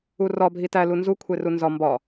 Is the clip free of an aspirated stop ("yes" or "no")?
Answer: no